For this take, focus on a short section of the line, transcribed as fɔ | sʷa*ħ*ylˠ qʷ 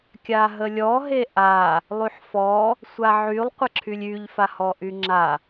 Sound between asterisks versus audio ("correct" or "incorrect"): incorrect